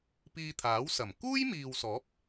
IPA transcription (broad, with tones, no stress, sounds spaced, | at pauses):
p iː˧ t̪ʰ aː˨˥ w s ɐ˨˩ m k uː˥ j m iː˨ w s ɔː˨˥ p̚